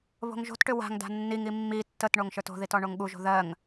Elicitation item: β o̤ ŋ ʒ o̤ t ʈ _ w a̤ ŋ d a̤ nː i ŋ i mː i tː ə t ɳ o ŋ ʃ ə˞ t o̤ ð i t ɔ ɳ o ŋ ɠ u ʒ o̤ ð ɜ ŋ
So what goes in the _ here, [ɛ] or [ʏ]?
ʏ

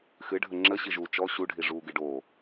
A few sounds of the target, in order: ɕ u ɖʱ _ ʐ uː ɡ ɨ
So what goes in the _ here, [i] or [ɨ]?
i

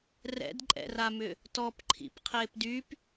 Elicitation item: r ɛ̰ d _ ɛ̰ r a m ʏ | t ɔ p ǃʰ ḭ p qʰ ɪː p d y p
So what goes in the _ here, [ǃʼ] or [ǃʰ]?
ǃʼ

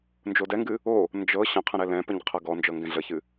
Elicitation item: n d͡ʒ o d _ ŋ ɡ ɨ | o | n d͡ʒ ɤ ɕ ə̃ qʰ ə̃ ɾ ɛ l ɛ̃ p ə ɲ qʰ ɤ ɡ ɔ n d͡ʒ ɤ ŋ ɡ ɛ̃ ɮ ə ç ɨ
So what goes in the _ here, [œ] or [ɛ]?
ɛ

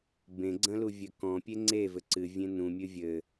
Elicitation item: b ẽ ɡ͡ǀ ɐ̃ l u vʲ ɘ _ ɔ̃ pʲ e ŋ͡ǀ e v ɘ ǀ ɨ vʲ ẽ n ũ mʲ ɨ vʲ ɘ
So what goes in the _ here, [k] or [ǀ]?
k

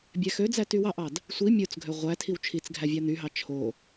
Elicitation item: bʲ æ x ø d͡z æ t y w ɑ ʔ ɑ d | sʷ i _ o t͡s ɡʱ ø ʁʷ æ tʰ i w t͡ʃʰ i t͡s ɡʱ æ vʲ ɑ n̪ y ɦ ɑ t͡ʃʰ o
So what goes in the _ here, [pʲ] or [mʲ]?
mʲ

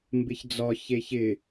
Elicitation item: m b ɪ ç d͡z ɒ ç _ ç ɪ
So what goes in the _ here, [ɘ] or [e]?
e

